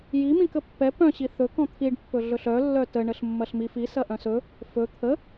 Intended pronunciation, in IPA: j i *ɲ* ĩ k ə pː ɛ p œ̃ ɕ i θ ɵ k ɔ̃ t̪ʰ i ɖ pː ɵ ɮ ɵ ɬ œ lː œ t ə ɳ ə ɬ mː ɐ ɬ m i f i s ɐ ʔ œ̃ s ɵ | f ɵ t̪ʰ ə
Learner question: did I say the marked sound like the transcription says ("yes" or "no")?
no